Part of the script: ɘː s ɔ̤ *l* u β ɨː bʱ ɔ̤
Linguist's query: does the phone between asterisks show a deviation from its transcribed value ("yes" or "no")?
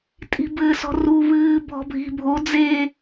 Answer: yes